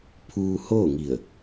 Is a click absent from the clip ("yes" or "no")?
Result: yes